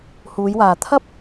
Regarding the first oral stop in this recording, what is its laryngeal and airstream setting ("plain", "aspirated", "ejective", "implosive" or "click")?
aspirated